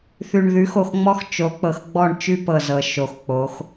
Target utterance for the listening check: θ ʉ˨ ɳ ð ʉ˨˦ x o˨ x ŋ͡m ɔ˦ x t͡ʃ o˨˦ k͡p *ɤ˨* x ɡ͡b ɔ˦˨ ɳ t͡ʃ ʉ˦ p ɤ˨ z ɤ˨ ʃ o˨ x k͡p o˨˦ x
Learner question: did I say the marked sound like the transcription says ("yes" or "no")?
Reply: yes